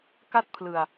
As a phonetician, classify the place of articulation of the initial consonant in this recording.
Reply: velar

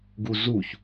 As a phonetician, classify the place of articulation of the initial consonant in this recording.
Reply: velar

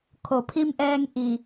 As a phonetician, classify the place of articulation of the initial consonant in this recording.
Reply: velar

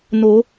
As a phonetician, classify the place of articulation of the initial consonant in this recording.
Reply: alveolar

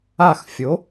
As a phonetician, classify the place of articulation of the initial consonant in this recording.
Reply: velar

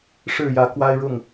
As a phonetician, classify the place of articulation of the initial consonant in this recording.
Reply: retroflex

